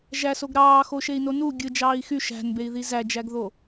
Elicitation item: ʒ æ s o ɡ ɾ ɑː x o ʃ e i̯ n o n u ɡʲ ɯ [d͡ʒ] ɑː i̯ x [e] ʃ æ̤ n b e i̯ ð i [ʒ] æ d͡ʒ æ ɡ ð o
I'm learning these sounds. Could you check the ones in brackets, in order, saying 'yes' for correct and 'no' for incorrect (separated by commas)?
yes, no, no